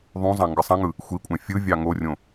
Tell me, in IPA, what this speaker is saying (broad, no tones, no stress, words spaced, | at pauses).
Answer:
ðˤũzˤɑ̃ ŋɡɯsˤɑ̃ŋɯ | xʷikʷʼæ̃ fʲɯvʲɑ ŋorʲõ